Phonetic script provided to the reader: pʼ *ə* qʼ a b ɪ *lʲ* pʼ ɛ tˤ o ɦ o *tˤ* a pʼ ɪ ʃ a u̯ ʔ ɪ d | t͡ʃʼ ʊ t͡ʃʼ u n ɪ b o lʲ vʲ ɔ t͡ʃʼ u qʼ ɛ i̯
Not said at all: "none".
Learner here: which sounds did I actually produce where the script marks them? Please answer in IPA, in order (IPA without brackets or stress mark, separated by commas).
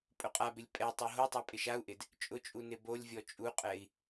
ʊ, lʲ, tˤ